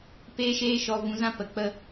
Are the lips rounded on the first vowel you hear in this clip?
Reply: no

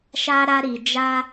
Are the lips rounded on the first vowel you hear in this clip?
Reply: no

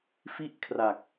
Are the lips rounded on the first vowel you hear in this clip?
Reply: no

